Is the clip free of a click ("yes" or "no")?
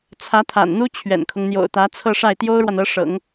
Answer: yes